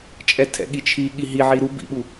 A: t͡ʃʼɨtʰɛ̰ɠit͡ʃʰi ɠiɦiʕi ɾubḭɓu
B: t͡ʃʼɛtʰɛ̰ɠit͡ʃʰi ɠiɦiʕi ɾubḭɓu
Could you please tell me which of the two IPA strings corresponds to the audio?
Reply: B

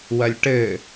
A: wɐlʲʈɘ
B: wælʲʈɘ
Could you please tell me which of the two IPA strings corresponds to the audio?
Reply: A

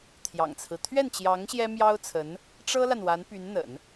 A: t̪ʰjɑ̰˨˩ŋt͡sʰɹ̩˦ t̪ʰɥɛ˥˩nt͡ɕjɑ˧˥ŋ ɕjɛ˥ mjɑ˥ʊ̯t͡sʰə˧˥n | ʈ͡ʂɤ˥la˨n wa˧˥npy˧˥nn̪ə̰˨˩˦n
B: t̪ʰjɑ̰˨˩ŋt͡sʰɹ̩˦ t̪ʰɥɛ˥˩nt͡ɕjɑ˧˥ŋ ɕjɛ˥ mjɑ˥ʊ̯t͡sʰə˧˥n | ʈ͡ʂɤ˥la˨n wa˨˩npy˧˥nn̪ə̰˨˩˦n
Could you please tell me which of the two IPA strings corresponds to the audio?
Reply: A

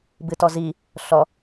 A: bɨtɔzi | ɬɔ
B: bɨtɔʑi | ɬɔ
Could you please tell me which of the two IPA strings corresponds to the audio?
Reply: A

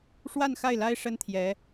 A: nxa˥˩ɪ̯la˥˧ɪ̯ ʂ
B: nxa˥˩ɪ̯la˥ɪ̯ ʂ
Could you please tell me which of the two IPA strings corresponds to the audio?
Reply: B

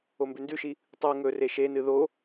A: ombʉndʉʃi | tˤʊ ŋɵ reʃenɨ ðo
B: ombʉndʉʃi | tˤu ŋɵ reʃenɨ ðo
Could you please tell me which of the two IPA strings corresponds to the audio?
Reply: B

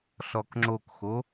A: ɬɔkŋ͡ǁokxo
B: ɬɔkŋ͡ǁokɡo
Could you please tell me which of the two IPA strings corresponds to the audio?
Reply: A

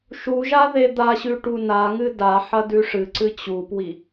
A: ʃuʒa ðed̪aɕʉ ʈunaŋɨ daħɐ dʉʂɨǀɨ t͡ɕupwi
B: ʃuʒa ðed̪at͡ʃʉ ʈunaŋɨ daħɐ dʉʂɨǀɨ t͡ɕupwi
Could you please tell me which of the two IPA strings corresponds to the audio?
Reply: A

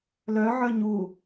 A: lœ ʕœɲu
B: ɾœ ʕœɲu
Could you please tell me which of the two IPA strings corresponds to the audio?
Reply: A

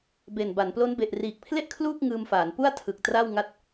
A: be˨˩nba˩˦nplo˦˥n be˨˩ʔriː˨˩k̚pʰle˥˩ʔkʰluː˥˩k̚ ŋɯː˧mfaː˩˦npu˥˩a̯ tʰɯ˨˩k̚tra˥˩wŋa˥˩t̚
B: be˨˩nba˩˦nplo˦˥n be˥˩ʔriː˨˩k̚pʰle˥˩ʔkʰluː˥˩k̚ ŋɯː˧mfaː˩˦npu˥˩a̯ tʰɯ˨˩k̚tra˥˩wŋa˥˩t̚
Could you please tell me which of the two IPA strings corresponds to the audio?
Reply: A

